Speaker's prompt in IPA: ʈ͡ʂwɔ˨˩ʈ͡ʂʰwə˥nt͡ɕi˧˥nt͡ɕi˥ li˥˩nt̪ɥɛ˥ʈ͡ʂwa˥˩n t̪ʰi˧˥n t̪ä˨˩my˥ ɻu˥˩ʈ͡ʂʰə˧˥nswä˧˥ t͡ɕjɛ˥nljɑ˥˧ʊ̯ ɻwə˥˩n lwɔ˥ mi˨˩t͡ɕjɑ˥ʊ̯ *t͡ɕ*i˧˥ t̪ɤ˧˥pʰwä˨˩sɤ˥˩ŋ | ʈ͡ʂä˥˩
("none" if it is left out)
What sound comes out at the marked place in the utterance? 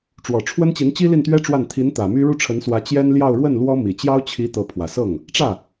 t͡ɕʰ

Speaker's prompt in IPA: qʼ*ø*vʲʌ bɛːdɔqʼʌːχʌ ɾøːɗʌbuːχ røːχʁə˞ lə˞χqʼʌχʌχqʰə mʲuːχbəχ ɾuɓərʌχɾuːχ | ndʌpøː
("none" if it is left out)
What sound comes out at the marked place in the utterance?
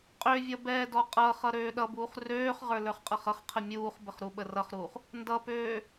ø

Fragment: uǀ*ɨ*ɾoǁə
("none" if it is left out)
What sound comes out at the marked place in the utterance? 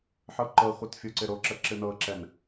ɪ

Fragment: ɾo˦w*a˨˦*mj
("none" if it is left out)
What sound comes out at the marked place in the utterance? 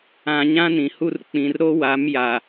a˨˦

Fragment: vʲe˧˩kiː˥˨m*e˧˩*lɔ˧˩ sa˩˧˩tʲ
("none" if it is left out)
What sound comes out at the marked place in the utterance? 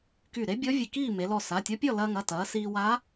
e˩˧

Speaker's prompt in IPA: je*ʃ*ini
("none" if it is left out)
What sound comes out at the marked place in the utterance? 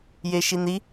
ʃ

